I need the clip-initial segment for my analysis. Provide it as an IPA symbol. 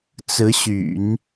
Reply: t͡s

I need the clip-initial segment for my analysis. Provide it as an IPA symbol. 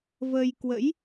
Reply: v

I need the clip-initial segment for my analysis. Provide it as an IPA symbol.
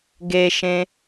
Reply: ɡ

